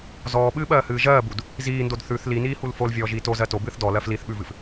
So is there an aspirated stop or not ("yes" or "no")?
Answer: no